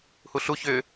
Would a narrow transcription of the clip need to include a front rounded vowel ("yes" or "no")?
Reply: yes